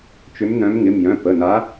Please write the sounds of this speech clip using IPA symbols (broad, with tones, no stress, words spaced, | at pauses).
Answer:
t͡ʃʏ˨˦mnœ̃˨˦mŋɪ˩˧˩m jœ̃˩˧˩pə˩˧˩na˨˦